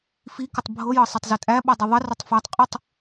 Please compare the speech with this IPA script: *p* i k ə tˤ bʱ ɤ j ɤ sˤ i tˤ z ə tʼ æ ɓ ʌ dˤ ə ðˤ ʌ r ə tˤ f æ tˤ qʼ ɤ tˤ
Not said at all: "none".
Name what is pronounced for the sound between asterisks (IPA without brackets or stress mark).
f